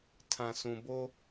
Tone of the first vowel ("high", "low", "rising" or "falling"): low